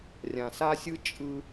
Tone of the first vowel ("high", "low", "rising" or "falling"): low